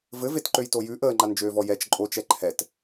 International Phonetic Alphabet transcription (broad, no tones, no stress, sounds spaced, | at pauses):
v ɘ v e t ǃ ø j t o j ʉ ʔ əː ŋ͡ǃ a n d͡ʒ øː v ɔ j ɛ t͡ʃ ǃʼ o t͡ʃ ɛ ǃʰ ɛ t